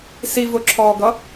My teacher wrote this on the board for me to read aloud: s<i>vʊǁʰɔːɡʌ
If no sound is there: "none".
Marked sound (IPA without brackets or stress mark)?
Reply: i